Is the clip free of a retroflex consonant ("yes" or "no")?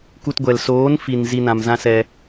yes